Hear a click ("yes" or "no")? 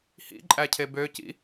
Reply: yes